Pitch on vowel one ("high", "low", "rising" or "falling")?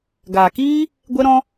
low